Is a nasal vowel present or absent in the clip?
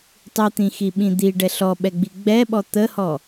present